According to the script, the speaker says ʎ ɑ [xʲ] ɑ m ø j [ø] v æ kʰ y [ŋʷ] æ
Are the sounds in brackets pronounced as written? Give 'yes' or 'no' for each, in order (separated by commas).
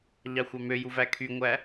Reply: no, no, yes